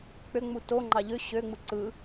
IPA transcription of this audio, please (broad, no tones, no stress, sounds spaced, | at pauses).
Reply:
k͡p ø ŋ͡m u t o ŋ͡ǃ ɑ ʎ ø ɕ ø ŋ͡m ɯ ǀ ɯ